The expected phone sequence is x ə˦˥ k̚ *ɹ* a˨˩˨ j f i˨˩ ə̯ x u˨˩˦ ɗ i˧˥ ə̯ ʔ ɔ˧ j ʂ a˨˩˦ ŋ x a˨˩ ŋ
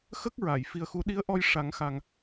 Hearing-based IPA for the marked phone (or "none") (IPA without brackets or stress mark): ɹ